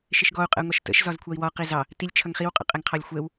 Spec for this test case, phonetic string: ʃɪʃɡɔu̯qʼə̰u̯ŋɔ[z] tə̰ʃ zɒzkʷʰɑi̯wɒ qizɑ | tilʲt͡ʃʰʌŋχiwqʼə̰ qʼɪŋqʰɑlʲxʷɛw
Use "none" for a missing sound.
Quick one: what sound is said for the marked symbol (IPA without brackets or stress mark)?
ʃ